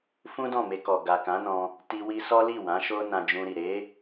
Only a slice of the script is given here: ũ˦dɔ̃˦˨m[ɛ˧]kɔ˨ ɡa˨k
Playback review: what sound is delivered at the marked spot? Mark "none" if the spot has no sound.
e˧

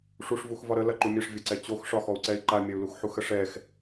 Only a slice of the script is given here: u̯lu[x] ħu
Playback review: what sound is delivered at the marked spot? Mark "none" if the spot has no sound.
x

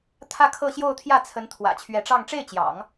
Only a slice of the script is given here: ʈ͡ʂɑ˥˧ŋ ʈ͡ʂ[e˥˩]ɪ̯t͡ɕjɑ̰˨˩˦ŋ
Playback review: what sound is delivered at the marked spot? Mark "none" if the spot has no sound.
e˥˩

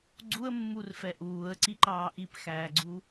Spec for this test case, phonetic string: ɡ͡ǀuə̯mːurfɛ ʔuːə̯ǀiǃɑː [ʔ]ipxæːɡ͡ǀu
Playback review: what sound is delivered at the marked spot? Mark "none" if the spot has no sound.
ʔ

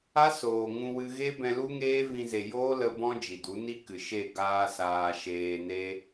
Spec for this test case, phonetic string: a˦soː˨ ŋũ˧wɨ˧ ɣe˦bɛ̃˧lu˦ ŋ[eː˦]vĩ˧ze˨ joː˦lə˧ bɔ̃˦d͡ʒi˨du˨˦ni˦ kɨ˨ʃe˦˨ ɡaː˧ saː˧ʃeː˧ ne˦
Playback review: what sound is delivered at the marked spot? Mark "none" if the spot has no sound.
eː˦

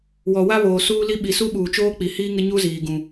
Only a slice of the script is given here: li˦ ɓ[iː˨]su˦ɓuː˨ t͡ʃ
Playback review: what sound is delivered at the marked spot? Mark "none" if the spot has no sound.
i˨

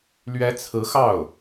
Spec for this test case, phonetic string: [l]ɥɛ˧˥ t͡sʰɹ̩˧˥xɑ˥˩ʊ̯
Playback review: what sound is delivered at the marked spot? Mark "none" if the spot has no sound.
l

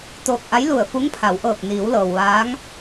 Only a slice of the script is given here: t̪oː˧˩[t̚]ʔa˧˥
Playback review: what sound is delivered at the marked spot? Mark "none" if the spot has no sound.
k̚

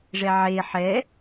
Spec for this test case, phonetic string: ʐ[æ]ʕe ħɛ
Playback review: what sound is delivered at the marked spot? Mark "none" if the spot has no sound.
ɛ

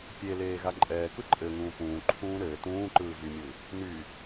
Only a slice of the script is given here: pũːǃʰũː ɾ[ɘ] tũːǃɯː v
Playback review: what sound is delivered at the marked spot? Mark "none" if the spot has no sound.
ɘː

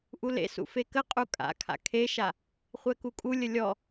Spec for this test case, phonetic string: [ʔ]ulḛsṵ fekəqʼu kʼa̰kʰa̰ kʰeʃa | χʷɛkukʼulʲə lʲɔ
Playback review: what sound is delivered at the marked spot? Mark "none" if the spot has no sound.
ʔ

